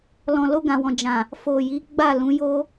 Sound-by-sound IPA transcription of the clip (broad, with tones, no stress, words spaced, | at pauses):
lɔ̃˨lo˧ɡã˨wɔ̃˨ d͡ʒã˨ | fo˨ji˨˦ ɡ͡ba˦˨lũ˨˦jo˦